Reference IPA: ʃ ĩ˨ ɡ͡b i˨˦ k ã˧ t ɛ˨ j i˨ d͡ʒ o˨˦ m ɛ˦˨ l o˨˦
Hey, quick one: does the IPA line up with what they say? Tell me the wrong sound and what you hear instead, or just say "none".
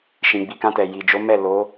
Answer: none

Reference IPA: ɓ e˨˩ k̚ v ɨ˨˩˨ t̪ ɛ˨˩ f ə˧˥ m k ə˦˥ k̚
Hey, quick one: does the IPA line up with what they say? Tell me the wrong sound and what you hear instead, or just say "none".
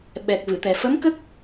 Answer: e˨˩ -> ɛ˨˩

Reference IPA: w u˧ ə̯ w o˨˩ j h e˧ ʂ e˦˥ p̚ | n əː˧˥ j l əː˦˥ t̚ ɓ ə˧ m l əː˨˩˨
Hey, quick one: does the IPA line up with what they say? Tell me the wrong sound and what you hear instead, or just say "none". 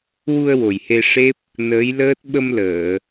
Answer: none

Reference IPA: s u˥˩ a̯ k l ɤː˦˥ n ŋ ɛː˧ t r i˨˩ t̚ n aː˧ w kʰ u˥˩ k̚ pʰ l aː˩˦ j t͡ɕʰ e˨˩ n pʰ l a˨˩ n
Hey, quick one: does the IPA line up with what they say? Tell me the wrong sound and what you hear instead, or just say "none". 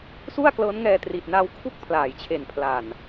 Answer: none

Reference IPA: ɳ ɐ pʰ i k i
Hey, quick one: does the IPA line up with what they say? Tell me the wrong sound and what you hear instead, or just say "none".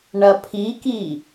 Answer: none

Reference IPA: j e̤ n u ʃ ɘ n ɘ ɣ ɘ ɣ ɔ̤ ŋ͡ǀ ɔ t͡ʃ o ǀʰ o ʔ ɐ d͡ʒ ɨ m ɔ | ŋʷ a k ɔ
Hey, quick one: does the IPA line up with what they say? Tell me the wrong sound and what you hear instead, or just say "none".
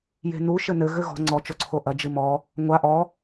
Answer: k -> ʔ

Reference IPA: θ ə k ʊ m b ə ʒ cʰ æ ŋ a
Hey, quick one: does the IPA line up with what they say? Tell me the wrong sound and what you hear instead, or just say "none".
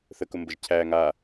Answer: none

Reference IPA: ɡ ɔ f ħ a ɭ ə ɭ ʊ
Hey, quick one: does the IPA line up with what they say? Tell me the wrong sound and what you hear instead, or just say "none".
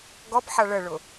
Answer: f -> p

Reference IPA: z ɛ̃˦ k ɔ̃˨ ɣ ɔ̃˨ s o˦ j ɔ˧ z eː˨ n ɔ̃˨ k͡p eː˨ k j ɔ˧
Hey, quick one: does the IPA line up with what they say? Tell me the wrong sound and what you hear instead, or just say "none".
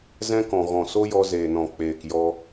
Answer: none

